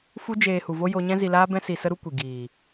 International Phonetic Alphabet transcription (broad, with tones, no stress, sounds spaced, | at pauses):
f u˦ d͡ʒ eː˧ h u˨ v o˦ j o˦ ɲ ɛ̃˦ z i˧ l aː˦ b ɛ̃˦ s i˧ s ə˦ ɾ u˦ kʷ i˨ ɡ iː˨